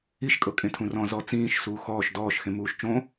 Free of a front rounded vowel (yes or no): yes